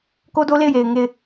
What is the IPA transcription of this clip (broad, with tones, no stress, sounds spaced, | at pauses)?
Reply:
k o˦ d o˦ l e˦˨ ɪ̯ j e˨ ɪ̯ ŋ e˦˨ ɪ̯